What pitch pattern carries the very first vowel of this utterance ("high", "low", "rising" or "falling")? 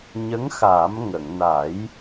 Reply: rising